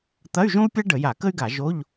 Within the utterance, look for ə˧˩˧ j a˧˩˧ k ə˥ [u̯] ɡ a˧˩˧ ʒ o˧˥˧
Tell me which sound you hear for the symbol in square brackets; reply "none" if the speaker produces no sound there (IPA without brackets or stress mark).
y̯